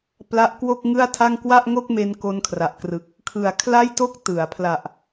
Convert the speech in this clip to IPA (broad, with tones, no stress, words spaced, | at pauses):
pla˦˥ʔkwo˥˩k̚ŋɯ˥˩a̯tʰa˥˩ŋ kwa˥˩ʔŋo˥˩k̚me˧n ko˧nkʰra˨˩ʔkrɯ˨˩k̚ | kʰɯ˨˩a̯ kʰla˥˩jto˥˩k̚ tɯ˩˦a̯ pʰla˨˩ʔ